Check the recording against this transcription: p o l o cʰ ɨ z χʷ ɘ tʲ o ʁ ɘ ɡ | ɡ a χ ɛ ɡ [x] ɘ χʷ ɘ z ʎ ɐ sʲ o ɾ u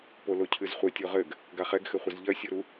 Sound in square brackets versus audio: correct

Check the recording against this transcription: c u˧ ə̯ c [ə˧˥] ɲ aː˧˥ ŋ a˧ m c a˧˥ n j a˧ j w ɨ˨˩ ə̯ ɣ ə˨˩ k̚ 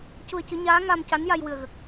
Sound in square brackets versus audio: incorrect: ɨ˧˥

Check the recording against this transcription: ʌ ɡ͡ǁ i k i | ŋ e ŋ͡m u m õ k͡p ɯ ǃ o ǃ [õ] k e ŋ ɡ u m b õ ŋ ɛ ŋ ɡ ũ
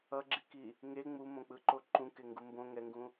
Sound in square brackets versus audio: incorrect: ũ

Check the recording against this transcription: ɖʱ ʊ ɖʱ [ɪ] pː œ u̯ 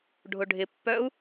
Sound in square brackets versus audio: correct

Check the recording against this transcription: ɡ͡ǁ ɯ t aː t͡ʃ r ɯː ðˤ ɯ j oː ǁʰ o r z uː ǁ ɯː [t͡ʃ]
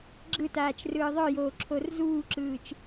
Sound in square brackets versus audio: correct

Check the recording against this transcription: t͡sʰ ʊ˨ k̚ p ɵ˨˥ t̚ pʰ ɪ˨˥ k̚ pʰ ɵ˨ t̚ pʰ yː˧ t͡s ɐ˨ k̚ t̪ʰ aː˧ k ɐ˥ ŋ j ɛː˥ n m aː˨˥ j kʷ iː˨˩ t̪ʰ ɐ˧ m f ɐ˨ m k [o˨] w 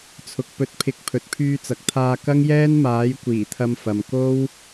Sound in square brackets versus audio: incorrect: o˥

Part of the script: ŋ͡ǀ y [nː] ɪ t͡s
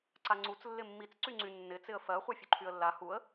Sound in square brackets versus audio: correct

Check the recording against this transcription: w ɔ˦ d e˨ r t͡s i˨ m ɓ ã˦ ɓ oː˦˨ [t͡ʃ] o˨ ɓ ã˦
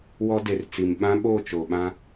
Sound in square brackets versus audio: correct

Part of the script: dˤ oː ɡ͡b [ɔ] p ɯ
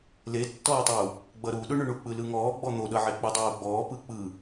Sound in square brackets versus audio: incorrect: ɔː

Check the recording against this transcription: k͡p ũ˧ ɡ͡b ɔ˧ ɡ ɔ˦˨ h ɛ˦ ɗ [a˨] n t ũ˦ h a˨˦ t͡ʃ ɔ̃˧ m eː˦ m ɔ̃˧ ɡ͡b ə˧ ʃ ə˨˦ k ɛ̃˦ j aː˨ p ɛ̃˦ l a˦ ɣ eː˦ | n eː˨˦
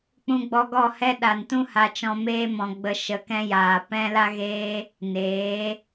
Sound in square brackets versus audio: correct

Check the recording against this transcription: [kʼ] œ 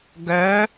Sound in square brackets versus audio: incorrect: ɡ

